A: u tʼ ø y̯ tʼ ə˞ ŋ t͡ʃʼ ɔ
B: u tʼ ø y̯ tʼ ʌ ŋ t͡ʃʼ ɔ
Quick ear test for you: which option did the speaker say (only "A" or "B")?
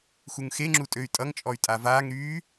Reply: B